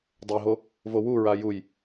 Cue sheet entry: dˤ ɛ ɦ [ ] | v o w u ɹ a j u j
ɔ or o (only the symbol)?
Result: o